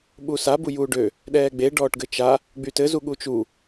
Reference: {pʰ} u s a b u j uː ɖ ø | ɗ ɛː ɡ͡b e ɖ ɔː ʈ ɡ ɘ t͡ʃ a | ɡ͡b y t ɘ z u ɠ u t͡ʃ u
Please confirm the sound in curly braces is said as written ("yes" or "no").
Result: no